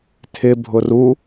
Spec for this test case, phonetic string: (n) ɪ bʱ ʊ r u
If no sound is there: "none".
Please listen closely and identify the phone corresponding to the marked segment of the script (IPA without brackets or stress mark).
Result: tʰ